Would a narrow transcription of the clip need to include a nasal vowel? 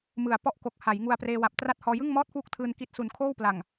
no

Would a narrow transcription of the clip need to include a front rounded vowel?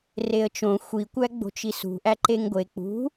no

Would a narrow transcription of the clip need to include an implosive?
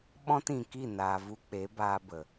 yes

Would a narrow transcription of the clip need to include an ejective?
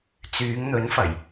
no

